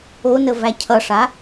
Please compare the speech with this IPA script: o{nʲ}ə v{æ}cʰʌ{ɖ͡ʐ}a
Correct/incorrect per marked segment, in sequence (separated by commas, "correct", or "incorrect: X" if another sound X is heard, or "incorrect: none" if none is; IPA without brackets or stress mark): incorrect: n, correct, incorrect: ʂ